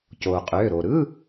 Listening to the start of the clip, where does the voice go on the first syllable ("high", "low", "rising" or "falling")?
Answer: low